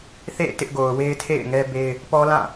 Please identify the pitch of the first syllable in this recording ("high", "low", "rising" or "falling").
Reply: falling